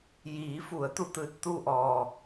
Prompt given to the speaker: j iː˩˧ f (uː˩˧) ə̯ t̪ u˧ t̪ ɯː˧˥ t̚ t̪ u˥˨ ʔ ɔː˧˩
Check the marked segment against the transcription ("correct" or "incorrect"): incorrect